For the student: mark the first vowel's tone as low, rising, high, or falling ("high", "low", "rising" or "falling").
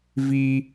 high